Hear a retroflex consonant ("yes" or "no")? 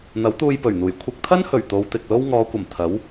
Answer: no